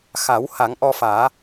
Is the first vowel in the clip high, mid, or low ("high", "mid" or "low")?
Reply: low